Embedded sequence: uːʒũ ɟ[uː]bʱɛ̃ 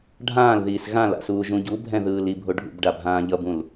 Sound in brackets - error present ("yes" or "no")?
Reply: yes